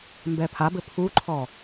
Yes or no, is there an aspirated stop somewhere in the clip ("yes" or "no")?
yes